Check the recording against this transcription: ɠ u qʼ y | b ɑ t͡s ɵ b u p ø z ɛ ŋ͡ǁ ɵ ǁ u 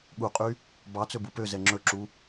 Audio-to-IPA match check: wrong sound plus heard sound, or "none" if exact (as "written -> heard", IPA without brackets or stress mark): none